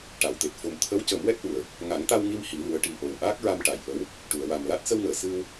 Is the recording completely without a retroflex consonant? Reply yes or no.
no